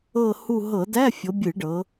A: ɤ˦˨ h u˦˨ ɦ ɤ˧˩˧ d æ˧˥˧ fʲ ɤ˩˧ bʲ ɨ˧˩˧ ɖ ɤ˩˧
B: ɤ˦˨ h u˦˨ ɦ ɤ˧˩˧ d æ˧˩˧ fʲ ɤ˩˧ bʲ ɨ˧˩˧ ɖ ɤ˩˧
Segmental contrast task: A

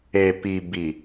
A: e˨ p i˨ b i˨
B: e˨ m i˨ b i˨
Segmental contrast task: A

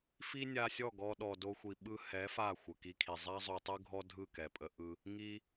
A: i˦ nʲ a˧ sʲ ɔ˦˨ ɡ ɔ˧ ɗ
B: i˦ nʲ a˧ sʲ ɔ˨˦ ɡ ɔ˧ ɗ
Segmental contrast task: A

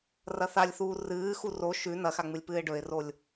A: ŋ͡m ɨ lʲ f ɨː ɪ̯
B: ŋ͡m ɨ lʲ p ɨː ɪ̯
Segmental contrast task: B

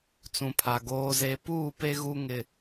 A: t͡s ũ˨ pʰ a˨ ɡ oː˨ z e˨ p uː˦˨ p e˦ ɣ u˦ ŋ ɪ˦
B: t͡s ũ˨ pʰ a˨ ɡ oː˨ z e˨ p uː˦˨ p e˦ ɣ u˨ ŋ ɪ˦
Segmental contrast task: A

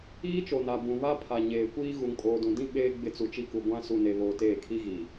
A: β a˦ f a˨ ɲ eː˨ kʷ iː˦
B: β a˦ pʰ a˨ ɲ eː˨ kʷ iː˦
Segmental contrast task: B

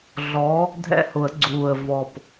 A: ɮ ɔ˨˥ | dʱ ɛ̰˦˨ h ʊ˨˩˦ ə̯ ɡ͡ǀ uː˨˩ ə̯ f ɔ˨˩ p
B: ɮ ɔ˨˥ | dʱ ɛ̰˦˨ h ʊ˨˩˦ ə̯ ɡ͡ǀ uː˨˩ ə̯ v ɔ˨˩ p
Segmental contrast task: B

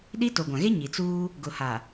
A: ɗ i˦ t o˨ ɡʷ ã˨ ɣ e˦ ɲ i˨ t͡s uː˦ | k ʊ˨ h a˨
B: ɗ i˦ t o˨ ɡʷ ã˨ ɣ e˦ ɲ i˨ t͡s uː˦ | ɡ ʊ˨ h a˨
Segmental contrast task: B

